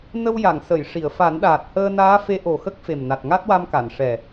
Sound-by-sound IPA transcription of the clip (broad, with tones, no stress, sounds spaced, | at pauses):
n ə˧ w j a˨˩˨ ŋ s ə˨˩˨ j ʂ i˨˩˨ ə̯ f a˨˩˦ n ɗ aː˨˩ t̚ h əː˧ n aː˧˥ f e˧˥ ʔ o˨˩ x ə˦˥ k̚ f e˨˩ m n a˨˩ t̚ ŋ a˦˥ t̚ w a˧ m k a˨˩˨ n ʂ ɛ˨˩